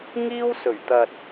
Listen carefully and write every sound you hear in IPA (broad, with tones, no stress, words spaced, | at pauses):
ŋiː˥wsɵ˨˩ɥt̪ɐ˨t̚